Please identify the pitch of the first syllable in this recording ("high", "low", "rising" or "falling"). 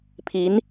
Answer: rising